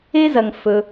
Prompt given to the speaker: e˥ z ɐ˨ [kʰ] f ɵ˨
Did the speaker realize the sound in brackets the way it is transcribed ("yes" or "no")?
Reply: no